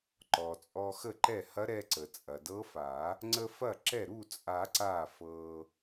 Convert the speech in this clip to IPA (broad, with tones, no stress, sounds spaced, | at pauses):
ǃ ɔ˩ t͡sʼ ɔ˧ x ə˥˩ ǃ ɛ˥˩ h ɐ˧˥ ɾ ɛ˧ ǀ ə˩ t͡sʼ ɐ˩ d ɤ˧˥ f a˨˩˦ | ŋ͡ǀ ə˧ f ɐ˥˩ ǁ ɛ˥˩ ɾ u˥˩ t͡sʼ a˨˩˦ ǀ a˥˩ f ɤ˧